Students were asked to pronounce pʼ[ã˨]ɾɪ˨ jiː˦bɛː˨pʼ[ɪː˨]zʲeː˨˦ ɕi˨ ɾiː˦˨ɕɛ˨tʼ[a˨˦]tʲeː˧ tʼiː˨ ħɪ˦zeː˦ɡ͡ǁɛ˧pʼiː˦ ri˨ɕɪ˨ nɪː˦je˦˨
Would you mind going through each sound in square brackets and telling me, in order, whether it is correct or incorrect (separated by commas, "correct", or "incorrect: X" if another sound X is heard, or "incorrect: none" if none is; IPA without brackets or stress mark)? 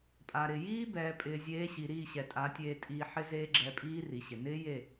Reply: incorrect: a˨, correct, correct